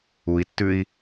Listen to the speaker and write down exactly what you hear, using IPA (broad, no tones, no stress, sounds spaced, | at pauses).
u i̯ tː ʉ i̯